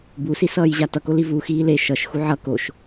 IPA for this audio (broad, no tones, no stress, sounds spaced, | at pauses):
b u s i s ʌː j ʑ a t ʌ k o l i v u x iː l e ʃ ʌ ʃ x u ʕ ʌ k o ʃ